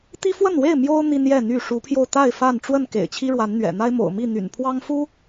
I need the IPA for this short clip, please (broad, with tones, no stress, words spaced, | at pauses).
t̪i˦fwə˥˨nwe˥˨ɪ̯ mjo˦ʊ̯ n̪i˦njɛ˥˨n̪y˥˨ ʂu˨˦pʰjo˧ʊ̯t̪a˥˨ɪ̯ fa˥˨n ʈ͡ʂwə˥˨n kḛ˨˩ɪ̯t͡ɕʰi˦ɻwa˨˦nn̪ɥɛ̰˨˩ n̪a˦ɪ̯mo̰˨˩ʊ̯mi˥˨n̪y̰˨˩n pʰwɑ˦ŋfu˦